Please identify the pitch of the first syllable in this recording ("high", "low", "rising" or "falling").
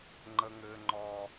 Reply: high